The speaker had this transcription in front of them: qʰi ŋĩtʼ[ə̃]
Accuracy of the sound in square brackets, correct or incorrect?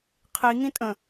correct